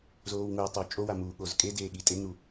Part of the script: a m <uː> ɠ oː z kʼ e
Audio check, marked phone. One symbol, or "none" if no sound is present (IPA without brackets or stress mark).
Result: uː